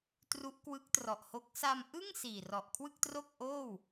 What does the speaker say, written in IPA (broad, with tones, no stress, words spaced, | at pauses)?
tru˦˥ʔkwɯ˦˥k̚trɔ˨˩ʔho˦˥k̚ sa˧mʔɯ˥˩ŋ siː˨˩rɔ˨˩ʔkʰwɯ˥˩k̚ tro˥˩k̚ʔoː˥˩w